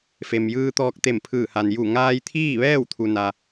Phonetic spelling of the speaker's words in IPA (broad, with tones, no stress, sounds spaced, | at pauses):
f e˩ m j ɯː˧ t̪ ɔː˧ k̚ t̪ e˧˩ m pʰ ɯː˧˩ h a˩ n j u˧˩ ŋ aː˧ j t̪ʰ iː˥˨ ʋ ɛː˥˨ w t̪ʰ u˩ n a˩